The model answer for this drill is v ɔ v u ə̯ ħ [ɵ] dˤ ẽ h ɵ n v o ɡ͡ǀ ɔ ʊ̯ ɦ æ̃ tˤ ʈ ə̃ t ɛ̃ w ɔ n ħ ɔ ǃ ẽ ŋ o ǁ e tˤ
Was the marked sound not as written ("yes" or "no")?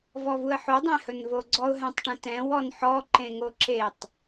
yes